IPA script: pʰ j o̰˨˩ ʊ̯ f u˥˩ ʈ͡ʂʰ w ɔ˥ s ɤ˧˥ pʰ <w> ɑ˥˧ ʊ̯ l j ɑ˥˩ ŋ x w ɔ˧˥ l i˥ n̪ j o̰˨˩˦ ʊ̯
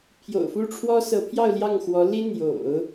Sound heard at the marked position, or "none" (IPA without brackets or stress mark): j